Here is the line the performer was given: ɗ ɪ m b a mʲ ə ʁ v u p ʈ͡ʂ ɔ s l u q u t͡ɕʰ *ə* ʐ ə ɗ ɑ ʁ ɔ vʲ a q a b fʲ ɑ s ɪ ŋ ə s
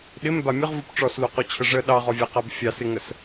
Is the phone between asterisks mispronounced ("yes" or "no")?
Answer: no